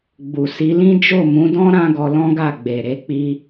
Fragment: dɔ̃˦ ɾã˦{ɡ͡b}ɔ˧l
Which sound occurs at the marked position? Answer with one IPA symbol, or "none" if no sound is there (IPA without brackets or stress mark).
ɡ